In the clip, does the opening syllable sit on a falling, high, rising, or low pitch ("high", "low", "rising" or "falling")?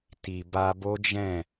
low